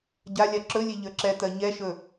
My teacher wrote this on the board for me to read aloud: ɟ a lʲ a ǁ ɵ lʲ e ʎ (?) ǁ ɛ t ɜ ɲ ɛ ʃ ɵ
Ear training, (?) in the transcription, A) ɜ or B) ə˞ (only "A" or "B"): B